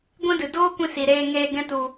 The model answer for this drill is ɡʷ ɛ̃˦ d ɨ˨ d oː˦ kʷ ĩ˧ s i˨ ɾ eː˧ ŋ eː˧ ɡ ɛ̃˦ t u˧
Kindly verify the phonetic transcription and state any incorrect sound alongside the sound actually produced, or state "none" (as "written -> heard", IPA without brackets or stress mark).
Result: none